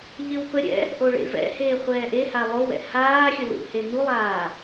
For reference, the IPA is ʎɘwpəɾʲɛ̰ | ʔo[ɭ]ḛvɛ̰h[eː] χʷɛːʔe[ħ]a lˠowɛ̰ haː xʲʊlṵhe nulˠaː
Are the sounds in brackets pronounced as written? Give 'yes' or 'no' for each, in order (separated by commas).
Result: yes, yes, no